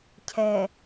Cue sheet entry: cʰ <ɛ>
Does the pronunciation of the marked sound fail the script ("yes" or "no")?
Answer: no